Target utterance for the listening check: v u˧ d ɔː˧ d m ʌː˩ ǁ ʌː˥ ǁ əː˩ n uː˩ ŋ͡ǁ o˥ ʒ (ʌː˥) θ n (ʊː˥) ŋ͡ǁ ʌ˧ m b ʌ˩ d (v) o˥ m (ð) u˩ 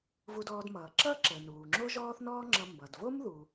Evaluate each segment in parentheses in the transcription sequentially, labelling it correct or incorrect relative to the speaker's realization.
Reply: incorrect, incorrect, correct, correct

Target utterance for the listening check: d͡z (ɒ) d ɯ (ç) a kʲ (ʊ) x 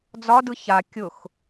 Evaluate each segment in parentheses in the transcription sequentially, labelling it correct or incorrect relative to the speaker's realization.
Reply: correct, correct, correct

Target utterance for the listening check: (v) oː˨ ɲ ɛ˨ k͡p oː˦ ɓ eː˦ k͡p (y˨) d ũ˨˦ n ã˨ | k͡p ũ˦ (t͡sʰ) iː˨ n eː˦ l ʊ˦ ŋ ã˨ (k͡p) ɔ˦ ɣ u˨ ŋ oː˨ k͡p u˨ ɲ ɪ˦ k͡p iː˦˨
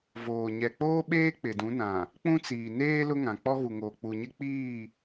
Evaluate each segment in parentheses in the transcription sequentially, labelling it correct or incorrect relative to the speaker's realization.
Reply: correct, incorrect, incorrect, correct

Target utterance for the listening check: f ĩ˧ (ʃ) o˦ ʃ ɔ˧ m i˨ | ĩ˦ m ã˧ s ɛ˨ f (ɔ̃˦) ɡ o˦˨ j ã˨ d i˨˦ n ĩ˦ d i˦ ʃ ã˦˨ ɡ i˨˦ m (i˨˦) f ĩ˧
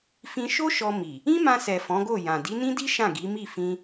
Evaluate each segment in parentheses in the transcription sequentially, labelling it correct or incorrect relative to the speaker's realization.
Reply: correct, incorrect, incorrect

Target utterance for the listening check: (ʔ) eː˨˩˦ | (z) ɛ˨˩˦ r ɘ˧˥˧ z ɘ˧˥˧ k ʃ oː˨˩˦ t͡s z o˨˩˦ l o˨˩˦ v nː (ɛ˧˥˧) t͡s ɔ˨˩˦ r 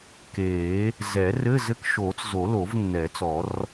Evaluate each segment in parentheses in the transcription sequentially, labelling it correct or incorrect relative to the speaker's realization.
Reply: incorrect, correct, incorrect

